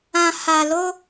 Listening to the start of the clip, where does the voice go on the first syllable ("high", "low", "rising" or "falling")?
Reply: low